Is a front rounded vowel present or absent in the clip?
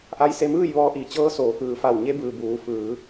absent